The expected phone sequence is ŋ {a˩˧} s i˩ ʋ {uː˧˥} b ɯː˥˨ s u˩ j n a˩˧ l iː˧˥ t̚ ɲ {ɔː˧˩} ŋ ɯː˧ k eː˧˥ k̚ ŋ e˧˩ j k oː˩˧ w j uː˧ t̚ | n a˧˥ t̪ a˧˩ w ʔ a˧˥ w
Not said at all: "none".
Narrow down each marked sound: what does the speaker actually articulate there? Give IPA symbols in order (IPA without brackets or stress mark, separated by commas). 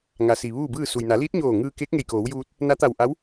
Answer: a˩˧, uː˥˨, oː˧˩